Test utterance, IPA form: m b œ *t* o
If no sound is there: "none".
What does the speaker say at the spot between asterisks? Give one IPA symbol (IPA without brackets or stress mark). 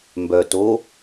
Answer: t